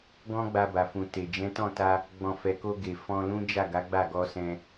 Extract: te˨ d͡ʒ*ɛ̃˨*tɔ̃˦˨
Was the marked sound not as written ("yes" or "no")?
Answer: yes